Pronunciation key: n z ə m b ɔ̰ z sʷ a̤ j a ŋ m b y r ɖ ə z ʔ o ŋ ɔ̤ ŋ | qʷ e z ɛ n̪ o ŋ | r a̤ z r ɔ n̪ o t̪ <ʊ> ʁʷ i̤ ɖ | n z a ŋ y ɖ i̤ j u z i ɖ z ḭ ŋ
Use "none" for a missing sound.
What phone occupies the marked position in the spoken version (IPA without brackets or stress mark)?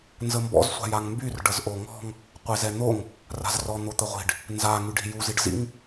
ə